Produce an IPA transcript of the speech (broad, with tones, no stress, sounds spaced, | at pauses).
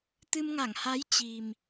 t̪ ɨ˧ m ŋ a˧˩ ŋ h a˨˦ j t͡ɕ i˨˩ m